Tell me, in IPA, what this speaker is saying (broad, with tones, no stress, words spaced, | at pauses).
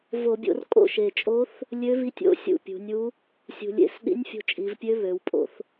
vo˧˩˧bʲo̰˧r kʼo̰˥˩ʃe˨˩t͡ʃʼo˧˥θ | lʲø˧˥vi˧˥tʲo̰˧˥ sʲṵ˥˩pʲṳ˩˧nʲu˧˥ | sʲṳ˨˩lʲḛ˧˩˧s ɗḭ˧˥nʲfʲo̤˧t͡ʃʼi˩˧vpʲø˧˥ βø˩˧wpʼo̰˧θ